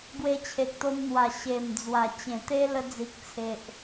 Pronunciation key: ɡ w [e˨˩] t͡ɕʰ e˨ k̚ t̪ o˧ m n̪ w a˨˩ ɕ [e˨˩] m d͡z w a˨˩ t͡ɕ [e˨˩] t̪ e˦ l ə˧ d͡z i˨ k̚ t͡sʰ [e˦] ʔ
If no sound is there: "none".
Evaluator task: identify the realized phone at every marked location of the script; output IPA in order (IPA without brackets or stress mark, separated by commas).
e˧, e˨˩, ẽ˨˩, e˨